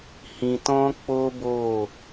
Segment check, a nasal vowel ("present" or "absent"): present